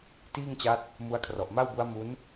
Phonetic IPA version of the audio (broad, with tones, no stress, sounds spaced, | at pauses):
t iː˥˩ ŋ t͡ɕ a˦˥ t̚ | m u˦˥ a̯ kʰ r ɔ˨˩ ʔ m a˥˩ w b u˦˥ a̯ m u˦˥ n